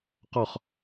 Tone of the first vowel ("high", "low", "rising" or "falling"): falling